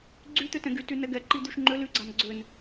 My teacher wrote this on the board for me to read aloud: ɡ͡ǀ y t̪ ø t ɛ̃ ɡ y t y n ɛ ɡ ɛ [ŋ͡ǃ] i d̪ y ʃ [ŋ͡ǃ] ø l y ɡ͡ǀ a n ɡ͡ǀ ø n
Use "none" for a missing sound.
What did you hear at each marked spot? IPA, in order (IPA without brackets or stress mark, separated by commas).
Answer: ǃ, ŋ͡ǃ